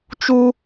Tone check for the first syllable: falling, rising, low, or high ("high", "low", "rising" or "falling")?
high